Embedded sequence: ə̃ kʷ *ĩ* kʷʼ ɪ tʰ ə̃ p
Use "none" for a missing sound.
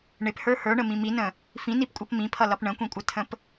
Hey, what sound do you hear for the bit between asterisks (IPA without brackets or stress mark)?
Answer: ĩ